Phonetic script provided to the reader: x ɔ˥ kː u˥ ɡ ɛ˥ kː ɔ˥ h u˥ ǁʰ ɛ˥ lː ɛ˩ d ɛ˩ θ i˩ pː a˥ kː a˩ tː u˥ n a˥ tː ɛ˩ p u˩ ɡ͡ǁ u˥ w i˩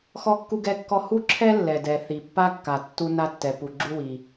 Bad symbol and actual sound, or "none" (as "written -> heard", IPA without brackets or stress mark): none